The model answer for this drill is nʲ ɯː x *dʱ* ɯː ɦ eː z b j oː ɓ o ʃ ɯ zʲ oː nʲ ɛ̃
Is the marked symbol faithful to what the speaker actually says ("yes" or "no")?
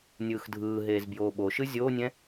yes